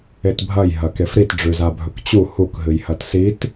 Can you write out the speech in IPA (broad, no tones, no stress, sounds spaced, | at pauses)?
e t bʱ ɐ j ɦ ɐ k e f ɾ i t ɖ͡ʐ ʉ z a bʱ ɵ k t͡ɕ u h u k ɦ ɨ j h ɐ t s i t